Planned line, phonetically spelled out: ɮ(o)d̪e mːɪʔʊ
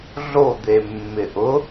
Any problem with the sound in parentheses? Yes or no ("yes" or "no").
no